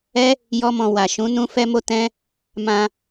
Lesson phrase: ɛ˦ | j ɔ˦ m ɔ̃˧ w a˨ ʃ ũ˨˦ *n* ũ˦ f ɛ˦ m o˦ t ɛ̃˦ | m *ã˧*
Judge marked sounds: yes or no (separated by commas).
yes, yes